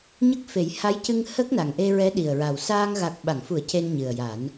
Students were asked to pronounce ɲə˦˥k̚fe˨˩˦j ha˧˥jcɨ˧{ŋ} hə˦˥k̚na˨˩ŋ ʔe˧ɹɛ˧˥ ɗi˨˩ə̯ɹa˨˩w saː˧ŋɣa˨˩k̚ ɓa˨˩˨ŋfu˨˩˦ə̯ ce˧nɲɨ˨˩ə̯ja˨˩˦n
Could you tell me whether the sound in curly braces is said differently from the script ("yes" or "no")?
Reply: no